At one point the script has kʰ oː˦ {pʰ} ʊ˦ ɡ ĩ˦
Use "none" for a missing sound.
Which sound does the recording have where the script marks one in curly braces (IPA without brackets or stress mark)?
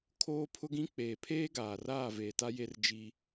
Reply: pʰ